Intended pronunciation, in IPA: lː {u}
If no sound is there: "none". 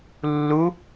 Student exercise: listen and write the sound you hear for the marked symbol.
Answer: u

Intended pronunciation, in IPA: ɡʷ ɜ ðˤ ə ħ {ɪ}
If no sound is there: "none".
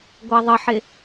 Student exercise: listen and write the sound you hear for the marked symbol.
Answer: ɪ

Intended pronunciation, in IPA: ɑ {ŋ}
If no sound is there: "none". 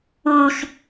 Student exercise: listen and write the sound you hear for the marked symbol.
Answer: x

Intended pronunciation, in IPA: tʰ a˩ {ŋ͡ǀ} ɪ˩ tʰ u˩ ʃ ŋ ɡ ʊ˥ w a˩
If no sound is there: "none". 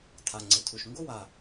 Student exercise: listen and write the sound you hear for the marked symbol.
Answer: ŋ͡ǀ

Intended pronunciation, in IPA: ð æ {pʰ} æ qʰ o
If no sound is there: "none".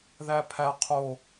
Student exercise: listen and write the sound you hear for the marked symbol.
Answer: pʰ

